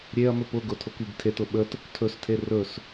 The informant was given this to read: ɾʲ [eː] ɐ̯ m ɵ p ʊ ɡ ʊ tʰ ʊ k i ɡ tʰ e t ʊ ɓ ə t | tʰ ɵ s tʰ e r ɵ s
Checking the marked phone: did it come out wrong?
yes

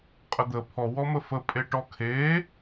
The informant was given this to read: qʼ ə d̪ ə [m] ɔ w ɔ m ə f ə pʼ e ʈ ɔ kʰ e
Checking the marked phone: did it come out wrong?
yes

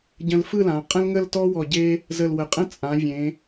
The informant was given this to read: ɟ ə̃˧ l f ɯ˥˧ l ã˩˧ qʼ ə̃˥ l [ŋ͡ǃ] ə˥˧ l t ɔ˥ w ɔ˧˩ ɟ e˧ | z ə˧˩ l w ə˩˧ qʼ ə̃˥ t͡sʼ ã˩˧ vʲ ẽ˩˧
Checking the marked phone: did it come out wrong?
yes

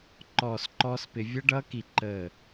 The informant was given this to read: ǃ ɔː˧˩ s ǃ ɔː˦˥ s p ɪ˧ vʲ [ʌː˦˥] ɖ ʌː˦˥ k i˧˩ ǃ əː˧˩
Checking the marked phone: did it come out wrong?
yes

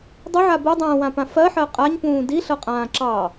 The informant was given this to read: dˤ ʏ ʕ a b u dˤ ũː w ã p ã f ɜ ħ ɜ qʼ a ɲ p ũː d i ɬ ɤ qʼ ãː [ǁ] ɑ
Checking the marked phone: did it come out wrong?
no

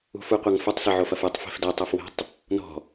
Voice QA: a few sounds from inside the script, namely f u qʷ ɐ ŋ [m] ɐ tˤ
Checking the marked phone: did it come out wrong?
yes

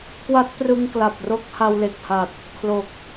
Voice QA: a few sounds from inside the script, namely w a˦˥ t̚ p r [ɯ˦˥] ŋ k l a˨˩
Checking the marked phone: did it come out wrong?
yes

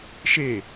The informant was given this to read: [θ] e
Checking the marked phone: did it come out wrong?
yes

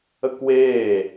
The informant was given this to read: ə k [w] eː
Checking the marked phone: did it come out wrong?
no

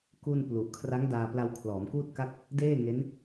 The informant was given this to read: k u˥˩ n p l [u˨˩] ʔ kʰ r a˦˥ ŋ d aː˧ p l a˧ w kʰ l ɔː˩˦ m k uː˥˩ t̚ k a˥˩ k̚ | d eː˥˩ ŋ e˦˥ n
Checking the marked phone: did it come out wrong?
no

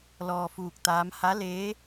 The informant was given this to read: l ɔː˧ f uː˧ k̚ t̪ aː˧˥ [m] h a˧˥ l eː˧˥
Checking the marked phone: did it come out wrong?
no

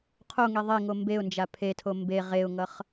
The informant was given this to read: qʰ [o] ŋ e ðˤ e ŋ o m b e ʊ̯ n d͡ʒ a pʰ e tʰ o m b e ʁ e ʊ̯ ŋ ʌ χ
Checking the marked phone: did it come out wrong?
no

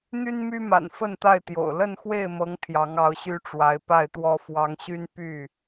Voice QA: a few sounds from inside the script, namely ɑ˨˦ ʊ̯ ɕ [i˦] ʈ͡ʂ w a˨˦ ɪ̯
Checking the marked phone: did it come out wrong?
yes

